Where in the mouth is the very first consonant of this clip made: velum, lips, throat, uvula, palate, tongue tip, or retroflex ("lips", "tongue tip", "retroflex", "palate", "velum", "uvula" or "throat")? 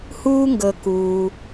throat